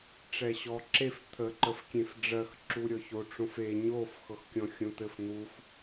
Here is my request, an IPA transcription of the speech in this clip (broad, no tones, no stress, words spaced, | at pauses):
ʈ͡ʂɛɕɔǁef t̪ʰə ǃəfkʲẽfɖ͡ʐɜx ǁuɾʲɔço ʈ͡ʂõfe ɲof xɤxkʲɔ̃xʲõt̪ɘf n̪uf